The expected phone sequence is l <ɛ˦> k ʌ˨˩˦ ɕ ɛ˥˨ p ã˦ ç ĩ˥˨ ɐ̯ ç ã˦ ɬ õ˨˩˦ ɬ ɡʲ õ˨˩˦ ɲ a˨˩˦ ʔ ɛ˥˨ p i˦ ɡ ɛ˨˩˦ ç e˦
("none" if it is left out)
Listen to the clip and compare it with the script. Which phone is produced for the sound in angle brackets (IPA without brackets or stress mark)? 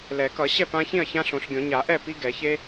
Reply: ɛ˨˩˦